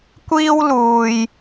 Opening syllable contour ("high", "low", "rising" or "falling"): high